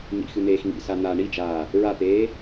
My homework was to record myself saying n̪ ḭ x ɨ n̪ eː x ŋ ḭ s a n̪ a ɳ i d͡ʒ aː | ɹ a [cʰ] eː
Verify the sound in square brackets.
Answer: incorrect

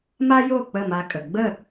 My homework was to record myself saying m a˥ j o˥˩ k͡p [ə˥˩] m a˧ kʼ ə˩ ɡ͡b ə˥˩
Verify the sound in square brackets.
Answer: correct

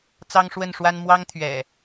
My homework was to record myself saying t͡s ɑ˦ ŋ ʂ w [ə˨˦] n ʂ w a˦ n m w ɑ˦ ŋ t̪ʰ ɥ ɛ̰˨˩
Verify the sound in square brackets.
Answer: incorrect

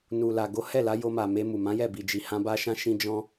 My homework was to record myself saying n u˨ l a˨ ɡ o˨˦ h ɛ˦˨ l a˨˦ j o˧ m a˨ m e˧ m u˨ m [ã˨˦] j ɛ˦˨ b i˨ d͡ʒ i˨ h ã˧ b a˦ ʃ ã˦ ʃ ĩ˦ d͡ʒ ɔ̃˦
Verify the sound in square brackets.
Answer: correct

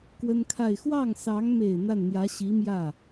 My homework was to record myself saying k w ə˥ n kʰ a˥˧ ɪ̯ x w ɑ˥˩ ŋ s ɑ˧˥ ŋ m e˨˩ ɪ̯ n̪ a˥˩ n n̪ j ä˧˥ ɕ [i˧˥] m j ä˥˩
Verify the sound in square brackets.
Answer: correct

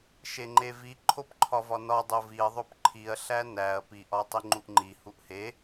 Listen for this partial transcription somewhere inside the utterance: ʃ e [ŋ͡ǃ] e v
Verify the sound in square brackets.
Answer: correct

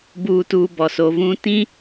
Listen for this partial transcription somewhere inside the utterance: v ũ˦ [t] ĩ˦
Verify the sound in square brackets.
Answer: correct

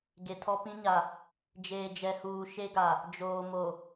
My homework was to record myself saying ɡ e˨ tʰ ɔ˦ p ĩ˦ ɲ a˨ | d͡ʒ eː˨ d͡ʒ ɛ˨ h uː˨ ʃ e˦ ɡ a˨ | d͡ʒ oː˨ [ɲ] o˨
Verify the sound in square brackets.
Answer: incorrect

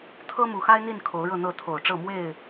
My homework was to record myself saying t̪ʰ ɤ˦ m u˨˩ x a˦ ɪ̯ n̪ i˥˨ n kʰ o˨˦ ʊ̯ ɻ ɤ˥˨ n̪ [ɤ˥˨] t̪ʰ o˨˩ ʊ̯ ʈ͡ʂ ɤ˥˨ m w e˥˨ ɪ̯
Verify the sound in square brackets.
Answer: correct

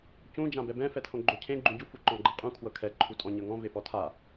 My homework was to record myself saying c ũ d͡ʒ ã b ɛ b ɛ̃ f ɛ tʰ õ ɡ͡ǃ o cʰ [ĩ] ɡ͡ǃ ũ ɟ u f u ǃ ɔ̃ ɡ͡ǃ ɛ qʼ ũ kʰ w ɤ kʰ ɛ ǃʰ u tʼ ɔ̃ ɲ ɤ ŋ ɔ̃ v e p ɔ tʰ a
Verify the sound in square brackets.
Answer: incorrect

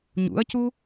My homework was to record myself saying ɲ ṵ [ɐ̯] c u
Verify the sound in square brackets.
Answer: correct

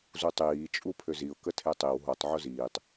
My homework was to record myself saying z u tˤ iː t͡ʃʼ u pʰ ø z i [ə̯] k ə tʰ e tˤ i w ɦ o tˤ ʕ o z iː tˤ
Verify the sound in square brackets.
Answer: incorrect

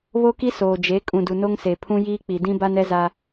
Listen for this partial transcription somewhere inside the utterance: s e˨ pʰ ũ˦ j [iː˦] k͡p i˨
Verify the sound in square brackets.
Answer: correct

